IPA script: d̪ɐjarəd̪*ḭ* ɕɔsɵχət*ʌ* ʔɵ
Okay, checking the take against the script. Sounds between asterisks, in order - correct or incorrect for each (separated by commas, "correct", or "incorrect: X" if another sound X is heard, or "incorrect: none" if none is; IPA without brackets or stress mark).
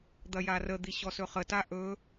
incorrect: i, incorrect: a